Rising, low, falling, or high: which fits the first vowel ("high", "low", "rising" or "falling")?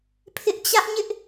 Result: high